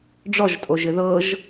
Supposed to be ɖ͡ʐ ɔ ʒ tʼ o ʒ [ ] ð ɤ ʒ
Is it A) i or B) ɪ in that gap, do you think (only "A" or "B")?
B